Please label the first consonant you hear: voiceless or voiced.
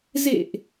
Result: voiced